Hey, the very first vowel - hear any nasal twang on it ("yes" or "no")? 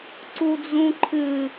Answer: no